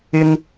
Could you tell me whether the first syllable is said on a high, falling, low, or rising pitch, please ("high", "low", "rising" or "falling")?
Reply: high